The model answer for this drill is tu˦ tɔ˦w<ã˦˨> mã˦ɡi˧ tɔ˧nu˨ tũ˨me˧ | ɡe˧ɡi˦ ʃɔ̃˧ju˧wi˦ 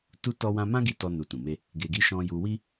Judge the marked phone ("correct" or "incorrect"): incorrect